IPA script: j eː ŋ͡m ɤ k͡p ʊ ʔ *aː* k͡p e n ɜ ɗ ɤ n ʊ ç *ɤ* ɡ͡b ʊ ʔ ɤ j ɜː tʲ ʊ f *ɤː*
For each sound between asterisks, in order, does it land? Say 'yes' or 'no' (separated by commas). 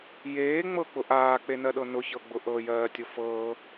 yes, yes, yes